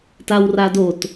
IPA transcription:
t a w r a d o t

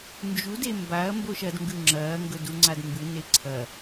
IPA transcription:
n d͡ʒ u d e m b a ɐ̯ m b o ʃ ɐ d ŋ ɡ ʉ ŋ͡ǁ ɐː ŋ ɡ ɵ d u ŋ͡ǀ a d m b ɨ n e ǀʰ ɐ

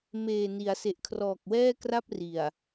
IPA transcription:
m eː˨˩ n i˩˦ a̯ s e˨˩ ʔ kʰ r ɔː˨˩ k̚ w ɛː˥˩ k r a˥˩ p̚ r i˨˩ a̯

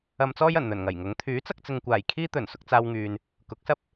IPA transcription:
ɐ˧ m t͡s ɔː˥ j ɐ˨˩ n n̪ ɵ˨˩ n ŋ ɐ˨˩ j ŋ ʊ˨˥ ŋ t̪ʰ yː˨˥ t͡s ɐ˧ k̚ t͡s ɪ˨ ŋ kʷ aː˨˩ j kʰ iː˥ t̪ ɵ˨˩ n s ʊ˧ k̚ t͡s aː˧ w ŋ yː˨ n | k ʊ˨˥ k̚ s ɐ˥ p̚

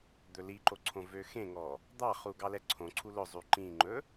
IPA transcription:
d̪ ɵ l i ǃ o ǀʰ õ v ø x ẽ ŋ ɔ | d̪ ɑ χ u ɡ ɑ l ɛ ǀʰ õ ǀʰ u l ɵ zˤ y ǃ ĩ ŋ͡ǃ ɵ

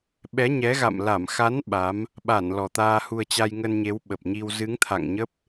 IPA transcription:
ɓ ɛ˨˦ ɲ ɛ˨˦ ɣ a̰˧˨ m l a˧˩ m x a˨˦ n ɓ a˨˦ m | ɓ a˧˩ n l ɔ˨˩ t̪ aː˧ h u˧ ə̯ t͡ɕ a˧ j ŋ ə˧ n ɲ e˨˦ w ɓ ə˨˩ p̚ ɲ i˧ w z ɨ˨˦ ŋ t̪ʰ a̰˧˨ ŋ ɲ ə˦˥ p̚

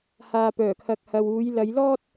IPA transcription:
h aː˨ p œː˨˩ kʰ ɐ˨ k̚ h ɐ˨ w uː˨˧ j l ɐ˨˧ j l ɔː˥ t̚

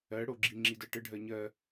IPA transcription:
ɜ ɽ o ɡ͡ǁ i ŋ͡ǁ i d ɜ ʈ ə ɖʱ ɜ ɲ ɜ

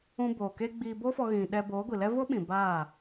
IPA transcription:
ũ˧ b oː˨ k e˧ ɡ͡b iː˧ b o˦ f ɔ˧ ɣ ĩ˨ ɗ ɛ˧ b oː˨˦ ɡʷ i˨ l ɛ˦ v o˦ ɓ ĩ˨ b aː˦˨

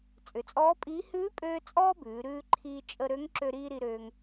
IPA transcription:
t͡sʼ ʏ˩˧ t͡sʼ ɔː˧˥ pʼ iː˧˥ h ʉː˧˥ pʼ øː˧ t͡sʼ ɔː˥ b ʉː˩˧ ɾ ʉː˧ ǃʰ iː˧ t͡ʃʼ ə˧ ɾ ø˧˥ ŋ ǁ ø˧ ɾ iː˧ ɾ i˧ ɾ øː˧ ŋ

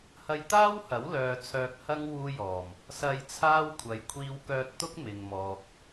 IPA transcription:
h ɐ˧ j t̪ aː˥ w h ɐ˨˥ w l œː˨ t͡sʰ œː˧ k̚ h ɐ˥ ŋ w uː˥ j ɔː˨˩ m | s ɐ˧ j t͡sʰ aː˥ w kʷʰ ɐ˨ j kʷʰ iː˧ w k œː˧ t̚ t̪ ʊ˥ k̚ m ɪ˨ ŋ m ɔː˨ k̚

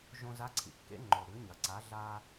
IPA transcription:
ʒ õ˧ z a˧˥ ǀʰ ḭ˩ kː ḛ˧˥ ŋ͡ǃ o˩ ɾ ʉ˩˧ ɲ ɐ˩ ǀ a˩˧ ɮ a˧

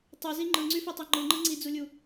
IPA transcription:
tˤ u z i ŋ͡ǃ ɯ ŋ͡ǀ y f o tˤ y ŋ͡ǃ ɯ ŋ͡ǃ ɯ ŋ͡ǀ i d͡z u lʲ u

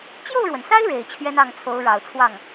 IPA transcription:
t͡ɕ j o˥˩ ʊ̯ ɻ w ə˩ n s a˥ ɪ̯ ɻ e˨˩ ɪ̯ t͡ɕʰ ɥ ɛ˥ n ɑ˥˩ ŋ t͡sʰ o˧˥ ʊ̯ ɻ ɑ˨˩ ʊ̯ t͡sʰ w ɑ˥˩ ŋ

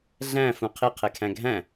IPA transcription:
ɮ æ̃ f ũ qʰ i qʰ e kʰ æ̃ ɡʱ æ̃

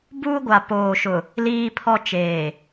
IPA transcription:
b uː˦ ɡʷ a˨ p oː˨ ʃ ʊ˨ | l iː˦ pʰ ɔ˦ t͡ʃ eː˨

